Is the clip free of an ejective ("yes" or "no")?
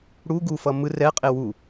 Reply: no